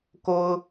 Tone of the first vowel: high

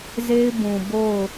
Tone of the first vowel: high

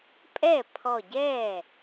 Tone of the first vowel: falling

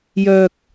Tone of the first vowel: low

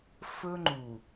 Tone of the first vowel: high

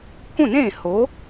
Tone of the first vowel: falling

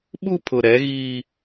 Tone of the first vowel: high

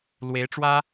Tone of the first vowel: rising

